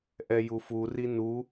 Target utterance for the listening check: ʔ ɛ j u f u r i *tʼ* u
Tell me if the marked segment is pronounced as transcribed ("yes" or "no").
no